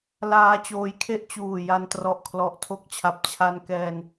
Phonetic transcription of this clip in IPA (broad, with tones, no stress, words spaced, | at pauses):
laː˧t͡ɕoː˧jkʰe˥˩ʔ t͡ɕuː˨˩ja˧n trɔ˨˩ʔkʰlɔ˨˩ʔtʰo˦˥k̚t͡ɕʰa˨˩p̚ t͡ɕʰa˧nkɛː˧n